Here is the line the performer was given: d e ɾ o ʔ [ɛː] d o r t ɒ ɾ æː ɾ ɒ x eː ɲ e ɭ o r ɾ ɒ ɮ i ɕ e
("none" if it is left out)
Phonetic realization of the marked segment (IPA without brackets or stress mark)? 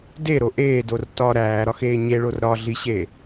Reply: eː